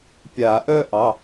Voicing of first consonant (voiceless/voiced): voiceless